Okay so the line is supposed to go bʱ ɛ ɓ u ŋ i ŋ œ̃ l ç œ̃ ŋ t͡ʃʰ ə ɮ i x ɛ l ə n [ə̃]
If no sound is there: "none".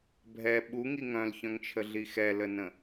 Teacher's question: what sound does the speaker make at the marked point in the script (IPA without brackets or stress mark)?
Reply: ə̃